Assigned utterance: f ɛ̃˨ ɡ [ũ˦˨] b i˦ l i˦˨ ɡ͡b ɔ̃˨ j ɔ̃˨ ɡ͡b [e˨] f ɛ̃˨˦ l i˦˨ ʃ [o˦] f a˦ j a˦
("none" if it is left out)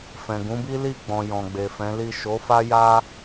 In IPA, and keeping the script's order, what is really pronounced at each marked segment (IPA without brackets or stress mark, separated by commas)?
ũ˨˦, e˨, o˨˦